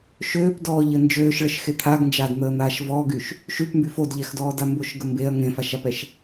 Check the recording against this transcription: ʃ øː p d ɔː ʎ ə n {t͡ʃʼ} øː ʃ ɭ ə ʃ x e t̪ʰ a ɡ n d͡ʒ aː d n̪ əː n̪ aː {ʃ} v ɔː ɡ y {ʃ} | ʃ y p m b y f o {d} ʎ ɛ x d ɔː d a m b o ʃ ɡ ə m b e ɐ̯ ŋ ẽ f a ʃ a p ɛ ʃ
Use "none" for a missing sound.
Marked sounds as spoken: d͡ʒ, ʃ, ʃ, d

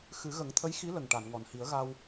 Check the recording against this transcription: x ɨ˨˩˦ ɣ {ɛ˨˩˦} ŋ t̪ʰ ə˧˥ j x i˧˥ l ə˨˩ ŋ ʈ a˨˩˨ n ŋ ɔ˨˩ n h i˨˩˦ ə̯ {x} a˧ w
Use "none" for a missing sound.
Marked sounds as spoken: ə˨˩˦, ɣ

